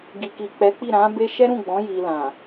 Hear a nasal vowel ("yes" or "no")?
yes